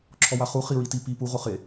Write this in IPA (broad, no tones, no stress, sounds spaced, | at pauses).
ǁʰ ɔ w a χ u χ i ɹ i t i p i p u ʁ o χ e